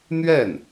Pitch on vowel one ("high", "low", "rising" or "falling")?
falling